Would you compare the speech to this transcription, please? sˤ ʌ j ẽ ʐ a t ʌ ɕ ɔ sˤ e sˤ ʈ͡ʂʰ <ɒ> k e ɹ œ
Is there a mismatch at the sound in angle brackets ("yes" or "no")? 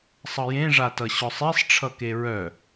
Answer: yes